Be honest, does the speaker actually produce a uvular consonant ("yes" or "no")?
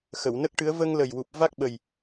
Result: no